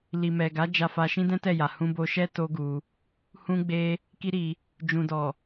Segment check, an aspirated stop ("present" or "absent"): absent